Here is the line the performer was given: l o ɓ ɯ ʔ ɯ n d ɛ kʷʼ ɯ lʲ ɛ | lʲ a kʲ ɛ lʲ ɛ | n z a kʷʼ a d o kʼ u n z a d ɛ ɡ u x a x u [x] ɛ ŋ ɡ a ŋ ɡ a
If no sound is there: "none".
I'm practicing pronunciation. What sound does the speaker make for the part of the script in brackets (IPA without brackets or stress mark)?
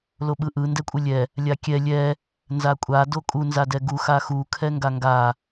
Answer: kʰ